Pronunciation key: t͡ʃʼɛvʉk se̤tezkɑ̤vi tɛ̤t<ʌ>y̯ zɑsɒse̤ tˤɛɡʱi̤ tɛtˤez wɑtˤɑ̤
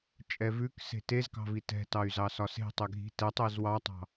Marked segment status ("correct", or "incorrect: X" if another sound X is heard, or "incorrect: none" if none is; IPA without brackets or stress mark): incorrect: ɑ